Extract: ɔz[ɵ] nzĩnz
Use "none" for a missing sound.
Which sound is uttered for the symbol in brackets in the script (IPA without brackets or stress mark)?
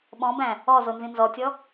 o